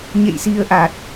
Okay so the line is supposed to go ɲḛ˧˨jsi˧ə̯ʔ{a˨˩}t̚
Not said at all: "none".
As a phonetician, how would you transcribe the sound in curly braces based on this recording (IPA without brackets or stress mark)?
a˨˩